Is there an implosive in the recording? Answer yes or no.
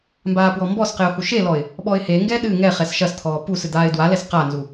yes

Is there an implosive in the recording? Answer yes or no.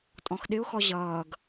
yes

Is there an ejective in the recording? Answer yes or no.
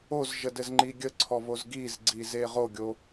no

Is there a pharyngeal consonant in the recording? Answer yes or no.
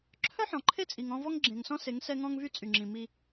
yes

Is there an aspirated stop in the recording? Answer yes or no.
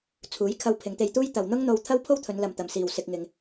yes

